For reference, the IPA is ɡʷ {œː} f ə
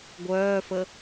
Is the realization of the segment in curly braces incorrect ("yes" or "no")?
no